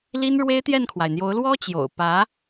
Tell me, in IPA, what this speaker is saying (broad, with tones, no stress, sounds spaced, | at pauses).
l i˥ n ɻ w e˥ ɪ̯ t̪ j ɛ˥˩ n kʰ w a˩ ɪ̯ n̪ j o˧˥ ʊ̯ l w ɔ˥ t͡ɕ j o̰˨˩ ʊ̯ p ä˧˥